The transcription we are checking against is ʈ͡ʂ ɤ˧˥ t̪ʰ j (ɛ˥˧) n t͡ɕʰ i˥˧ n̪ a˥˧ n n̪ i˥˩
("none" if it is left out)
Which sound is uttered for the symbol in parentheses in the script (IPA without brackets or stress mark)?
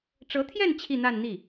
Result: ɛ˥˧